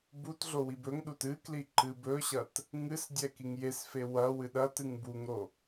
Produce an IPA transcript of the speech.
b u t ɮ o w i b ɵ ŋ ɗ u t ɨ k l i ǃ ɨ b ɵ ɕ ɐ t | ŋ ɨ s dʲ ɛ k i ŋ j e s f e w ɐ w ɨ ɗ ɐ t ɨ ŋ b u ŋ ɾ o

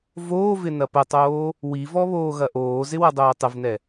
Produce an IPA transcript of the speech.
v oː v ɪ n ɐ p ə tˤ oː | w i v ɔ β oː ɣ ɐ ʔ oː z ɪ w ɐ dˤ oː tˤ ə v n ɛ

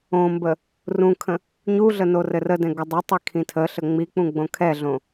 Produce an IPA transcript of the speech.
õ m b ə | r ũ kʰ ə̃ | ɲ u ɮ ə n o r ɘ r ə d ɛ̃ ɡ ə dˤ ə tˤ ɛ kʰ ĩ tʰ ə ɬ ə ŋ͡m i k͡p ũ ɡ͡b õ kʰ ɛ ɮ õ

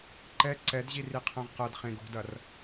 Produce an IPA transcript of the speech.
ǃ ɛ ǀ ɛ d ʑ i r i qʰ ɛ̃ ʁ q ɐ d χ ẽ ɡ o̤ d ɐ r

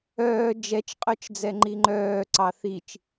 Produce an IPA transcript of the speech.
œː d͡ʒ ɛ t͡ʃ qʼ œ t͡ʃ d͡z ɛ ŋ͡ǃ i ŋ͡ǃ œː ǀ ɑ θ i t͡ʃ

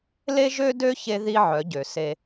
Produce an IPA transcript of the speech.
l e˦ ʒ ø˦ d ø˦ ç e˦ ð i˦ ʕ œ˨˦ ɟ ø˨ s e˦

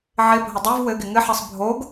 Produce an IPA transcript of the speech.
ʕ ɪ bʱ ə dˤ e v w ɘ ɡ ɪ ŋ ɘ ħ ɘ sˤ bʱ o ɡ

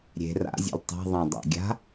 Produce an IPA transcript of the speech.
ɾʲ e̤ r a̰ zʲ ṵ l tˤ a̤ ðˤ ã dˤ a̰ ɡʲ a̤

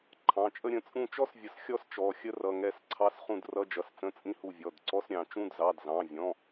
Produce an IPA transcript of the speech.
ǃʰ ɑ̃˩˧˩ t͡ʃʼ ə˥ ɾʲ ə̃˩˧˩ t͡sʼ ũ˦˨ t͡ʃ ɔ˥ s vʲ ə˨˩˦ s xʲ ɔ˥ s t͡ʃ ɔ˩˧˩ xʲ ə˥ r ʌ˩˧˩ ŋ ɛ˦˨ s ǀʰ ɑ˧˥˧ s χ ũ˦˨ d r ʌ˧˥˧ d͡ʒ ʌ˩˧˩ s t͡s ə̃˧˥˧ t͡sʼ ĩ˥ h u˦˨ vʲ ɔ˩˧˩ d ǀ ɔ˧˥˧ s ɾʲ ɑ̃˨˩˦ t͡ʃ ũ˧˥˧ d z ɑ˩˧˩ d z ɑ̃˩˧˩ vʲ ɔ̃˩˧˩

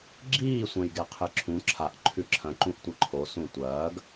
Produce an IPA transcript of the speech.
ɡ͡ǁ iː sʷ ɐ̃ j ɡ e qʰ ɨ ǁʰ ũ ǁʰ a ʔ ǃʰ ʉ ǁʰ ɐ̃ ǃ ũ ʔ tʷ ɨ ǃʰ o s ũ tʷ ɐː ɡ

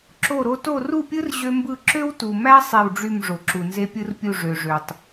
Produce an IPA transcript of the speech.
ǁ o˥˨ ɾ o˥ t o˥˨ r u˥˨ pʲ ɯ˥ r ʑ ø˥ m b ɯ˥˨ ǁ ø˥ w t u˨ m æ˥ sˤ e˥˨ w ɖ͡ʐ y˥˨ m ʐ o˨ ǁ u˨ n z e˥ pʲ ɯ˥ r pʲ u˥˨ ʐ ø˨ ʐ ø˨ tˤ

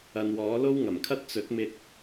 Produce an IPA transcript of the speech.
ɐ˨ n w ɔː˨˥ l o˥ w ŋ ɐ˨˩ m kʰ ɐ˥ t̚ t͡s ɵ˨˥ t̚ m ɪ˧ k̚

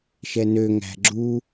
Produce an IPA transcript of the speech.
ʃ ɛ n ø ŋ æ̤ ɡ͡ǁ u

